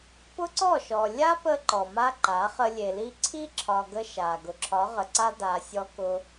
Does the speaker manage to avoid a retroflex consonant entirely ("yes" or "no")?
yes